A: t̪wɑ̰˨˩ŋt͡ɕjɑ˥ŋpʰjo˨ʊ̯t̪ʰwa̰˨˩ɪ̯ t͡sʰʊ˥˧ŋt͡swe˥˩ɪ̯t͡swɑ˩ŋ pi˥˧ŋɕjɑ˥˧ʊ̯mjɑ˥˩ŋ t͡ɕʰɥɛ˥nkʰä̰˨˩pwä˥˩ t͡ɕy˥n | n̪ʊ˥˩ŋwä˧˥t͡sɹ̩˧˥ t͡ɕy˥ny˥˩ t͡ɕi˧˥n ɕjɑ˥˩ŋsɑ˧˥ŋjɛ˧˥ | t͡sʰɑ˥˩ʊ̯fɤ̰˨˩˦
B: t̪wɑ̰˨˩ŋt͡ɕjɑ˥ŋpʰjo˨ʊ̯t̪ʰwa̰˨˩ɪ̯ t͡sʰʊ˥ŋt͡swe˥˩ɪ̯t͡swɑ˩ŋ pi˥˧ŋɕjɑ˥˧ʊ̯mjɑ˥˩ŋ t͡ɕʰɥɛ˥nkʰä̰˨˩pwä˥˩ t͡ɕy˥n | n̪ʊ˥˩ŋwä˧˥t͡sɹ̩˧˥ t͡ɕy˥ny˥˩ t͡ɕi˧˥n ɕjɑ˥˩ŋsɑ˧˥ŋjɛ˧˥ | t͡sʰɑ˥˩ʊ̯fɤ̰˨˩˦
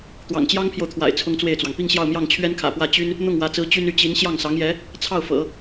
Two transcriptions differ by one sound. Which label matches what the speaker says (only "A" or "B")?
B